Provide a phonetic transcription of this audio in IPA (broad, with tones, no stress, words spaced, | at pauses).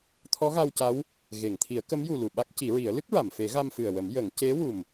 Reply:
t̪ʰɔ˧˥ɣa˧wca˧˥w | ɣe˨˩˨ŋt̪ʰi˨˩˦ə̯ kə˧˥mju˨˩ lu˨˩ɓa˦˥k̚ci˨˩˦ɹi˨˩˦ə̯ lɨ˦˥k̚ɹa˨˩˨mfe˨˩˦ ɣa˧mfɨ˨˩ə̯wə˨˩˦m jə˨˩˦ŋ ce˧˥wu˨˩m